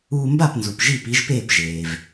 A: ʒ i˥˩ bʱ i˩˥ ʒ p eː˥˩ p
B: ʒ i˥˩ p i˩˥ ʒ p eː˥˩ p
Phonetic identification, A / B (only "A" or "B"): B